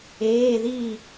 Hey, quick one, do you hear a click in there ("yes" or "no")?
no